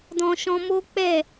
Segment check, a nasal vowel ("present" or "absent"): present